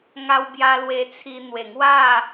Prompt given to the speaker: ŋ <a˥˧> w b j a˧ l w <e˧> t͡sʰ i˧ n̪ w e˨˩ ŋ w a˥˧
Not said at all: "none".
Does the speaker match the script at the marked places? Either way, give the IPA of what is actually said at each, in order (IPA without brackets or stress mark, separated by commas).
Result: a˧, e˧